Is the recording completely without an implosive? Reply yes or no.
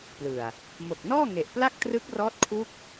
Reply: yes